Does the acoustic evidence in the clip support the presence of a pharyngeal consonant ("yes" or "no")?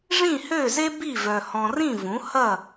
no